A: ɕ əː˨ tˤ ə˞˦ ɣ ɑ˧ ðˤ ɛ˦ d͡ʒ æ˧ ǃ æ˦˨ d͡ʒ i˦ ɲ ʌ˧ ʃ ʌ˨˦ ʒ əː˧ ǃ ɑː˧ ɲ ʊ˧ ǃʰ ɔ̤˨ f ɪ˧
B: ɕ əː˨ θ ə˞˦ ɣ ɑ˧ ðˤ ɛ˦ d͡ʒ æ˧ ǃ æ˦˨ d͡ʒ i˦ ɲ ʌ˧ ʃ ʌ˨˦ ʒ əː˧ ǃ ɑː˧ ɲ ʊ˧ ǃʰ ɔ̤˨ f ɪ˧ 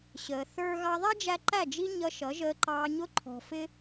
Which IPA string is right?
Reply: B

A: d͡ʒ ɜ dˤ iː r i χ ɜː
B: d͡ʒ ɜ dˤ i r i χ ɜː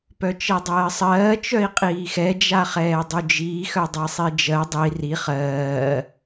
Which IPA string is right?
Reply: B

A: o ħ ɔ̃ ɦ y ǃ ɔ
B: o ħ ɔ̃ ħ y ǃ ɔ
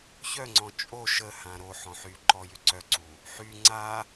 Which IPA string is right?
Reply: B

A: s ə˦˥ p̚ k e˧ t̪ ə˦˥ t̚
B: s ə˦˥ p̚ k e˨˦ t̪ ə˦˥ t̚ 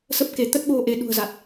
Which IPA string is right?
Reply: B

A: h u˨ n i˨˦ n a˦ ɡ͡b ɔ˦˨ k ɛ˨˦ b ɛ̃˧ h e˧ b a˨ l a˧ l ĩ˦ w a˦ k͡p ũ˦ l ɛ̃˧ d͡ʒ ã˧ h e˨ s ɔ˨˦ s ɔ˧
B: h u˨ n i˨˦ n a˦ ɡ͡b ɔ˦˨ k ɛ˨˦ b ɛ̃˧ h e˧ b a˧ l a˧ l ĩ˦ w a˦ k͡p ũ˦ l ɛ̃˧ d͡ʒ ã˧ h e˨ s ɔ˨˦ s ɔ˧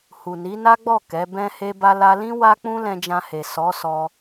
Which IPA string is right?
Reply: B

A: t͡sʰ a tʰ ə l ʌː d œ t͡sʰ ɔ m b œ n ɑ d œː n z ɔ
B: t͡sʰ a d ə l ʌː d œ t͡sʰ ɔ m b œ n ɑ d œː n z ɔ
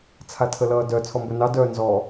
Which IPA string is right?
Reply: A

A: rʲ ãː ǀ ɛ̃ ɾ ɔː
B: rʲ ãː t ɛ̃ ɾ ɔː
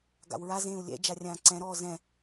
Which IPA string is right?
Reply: A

